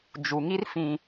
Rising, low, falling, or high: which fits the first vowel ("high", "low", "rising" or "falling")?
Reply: low